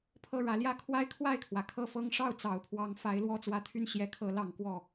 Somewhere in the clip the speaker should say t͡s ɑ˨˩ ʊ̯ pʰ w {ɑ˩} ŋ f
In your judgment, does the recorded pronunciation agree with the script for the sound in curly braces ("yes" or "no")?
no